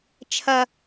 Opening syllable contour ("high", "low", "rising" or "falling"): high